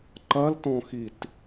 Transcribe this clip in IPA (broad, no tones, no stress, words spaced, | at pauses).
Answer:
ǃɐltɔ̃xit